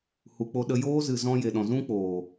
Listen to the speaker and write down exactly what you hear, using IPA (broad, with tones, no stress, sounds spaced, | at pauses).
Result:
h u˨ k͡p o˧ ɗ ə˧ j oː˦ z ɨ˨ z ɔ̃˧ j e˨ ɗ ɔ̃˨ z ũ˦ k͡p oː˨